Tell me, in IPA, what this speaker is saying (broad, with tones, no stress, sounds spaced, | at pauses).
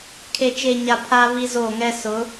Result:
kʰ e˨ t͡ʃ e˨ ɲ a˨ pʰ a˦ β i˦ z o˦˨ ŋ ɛ˦ s ʊ˨˦